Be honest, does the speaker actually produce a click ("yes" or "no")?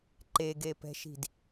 yes